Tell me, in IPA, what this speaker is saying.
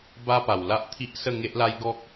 b a˦ p a˨˩ w l a˦ ʔ t̪ʰ i˦ ʔ s ə˥˧ ŋ e˦ ʔ l a˦ j ɡ ɔ˦ k̚

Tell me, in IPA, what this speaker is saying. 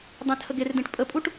dˤ ẽ tʰ ə ɡ e r d ẽ ʈ pʼ ə pʼ u ʈ

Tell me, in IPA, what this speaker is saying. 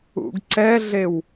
ṵ ɡ ǀ ɛ ɮ e w

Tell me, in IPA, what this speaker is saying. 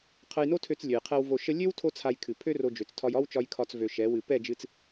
qʰ ə˧ j n o˦ tʰ ø˧ t͡s lʲ ø˨ j qʰ ɛ˧ w v o˧ ʃ ə˦ lʲ ø˦ w tʰ o˦ t͡sʰ a˧ j kʰ ɨ˨ pʰ ø˦ r o˧ d͡ʒ ø˨ t͡s tʰ ɒ˧ j ɒ˦ w t͡ʃ ɒ˧ j kʰ ɒ˧ t͡s v ø˧ ʃ ɛ˨˦ w ɨ˧ p ɛ˦˨ d͡ʒ ɨ˧ t͡s

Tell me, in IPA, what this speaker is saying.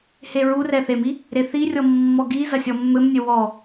h e ɹ u r ɛ θ e m i | ɾ e θ i rʲ ɔ mː ɔ ɡ i z ɐ sʲ ɔ mː ɘ m nʲ ɘ w ɔ

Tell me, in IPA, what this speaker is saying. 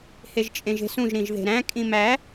h e ʒ t͡ʃʼ ẽ ʒ e̤ s ũ ʒ ɾ ĩ ʒ ð e̤ ɾ æ̃ kʼ ĩ m æ

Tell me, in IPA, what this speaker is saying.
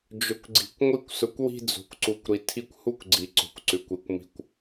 d͡ʒ ʊ˨ kʷ ɡ͡ǀ i̤˨ kʷ ŋʷ i˦ kʷ s ʊ˧ kʷ w i̤˧ d͡z o̤˨ kʷ ǀ u˨ kʷ ɾ i˨ tʰ i˧ kʷ h u˦ kʷ ɡ͡ǀ i˨ ǀ o̤˨ kʷ ǀ ʉ˨ kʷ i˨ kʷ m i̤˧ kʷ

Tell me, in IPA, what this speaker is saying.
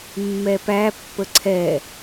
mː ɛ p æ pː ə ǀʰ ɛ

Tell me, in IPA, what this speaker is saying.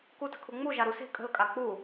k u t ə̤ kʰ u ŋ͡m u ʒ a ɾ u s e̤ kʼ ə̤ l kʼ a k͡p u

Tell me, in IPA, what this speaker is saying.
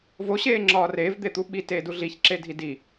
v o ɕ eː ŋ͡ǁ ɒː r eː v d̪ e t̪ u ɓ i t eː d u ɮ i ç ǁ e dʱ i d i

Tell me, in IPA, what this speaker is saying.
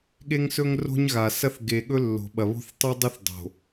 ɠ e˦ ŋ s ɵ˦ ŋ r o̤˦ ɲ ɣ a˨ s ɐ˦ θ ɡ e˨ ɠ ɵ˦ lː o̤˨ ɓ ɐ˨ β o̤˦ θ tˤ ʉ˦ dˤ ɨ˦ θ dˤ o̤˨

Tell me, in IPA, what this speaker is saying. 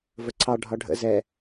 v ə ǀʰ ɑ ɖʱ ɒ ɖʱ ə̰ z ɛ

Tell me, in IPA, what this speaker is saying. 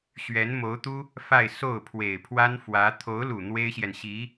ɕ ɥ ɛ˧˥ n m o˧˥ ʊ̯ t̪ u˥ | f a˥˧ ɪ̯ s o˥˩ ʊ̯ pʰ w e˨˩ ɪ̯ pʰ w a˥ n f w ä˧˥ t̪ʰ o˧˥ ʊ̯ l u˨˩ n̪ w e˥ ɪ̯ ɕ j ɛ˨ n ɕ i˧˥

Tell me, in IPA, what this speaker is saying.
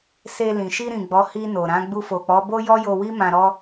s e˧ l ĩ˨ ʃ i˧ ɾ ĩ˨ ɡ͡b ɔ˨˦ h i˧ n o˨ ɾ ã˨˦ ɡ͡b u˧ f o˨ k͡p ɔ˨˦ b o˦ j ɔ˦ j o˧ w i˦ m ã˧ ɾ ɔ˦

